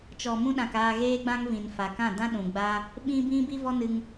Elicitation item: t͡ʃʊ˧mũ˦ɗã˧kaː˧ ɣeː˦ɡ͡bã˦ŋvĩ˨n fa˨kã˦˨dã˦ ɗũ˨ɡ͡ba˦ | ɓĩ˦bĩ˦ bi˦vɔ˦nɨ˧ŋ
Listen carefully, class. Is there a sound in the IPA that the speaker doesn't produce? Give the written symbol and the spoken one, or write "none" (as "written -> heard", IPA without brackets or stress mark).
ʊ˧ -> ɔ˧